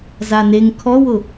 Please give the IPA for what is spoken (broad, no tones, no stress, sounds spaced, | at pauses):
z a n e ŋ kʰ ɔ w ʊ